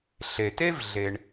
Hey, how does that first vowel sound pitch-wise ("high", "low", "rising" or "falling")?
low